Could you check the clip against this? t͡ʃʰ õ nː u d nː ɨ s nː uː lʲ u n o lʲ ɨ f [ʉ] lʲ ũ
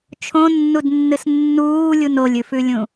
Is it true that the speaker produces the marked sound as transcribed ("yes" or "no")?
yes